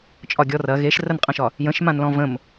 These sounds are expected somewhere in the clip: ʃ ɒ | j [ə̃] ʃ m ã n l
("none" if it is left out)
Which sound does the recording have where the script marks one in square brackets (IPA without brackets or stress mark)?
ə̃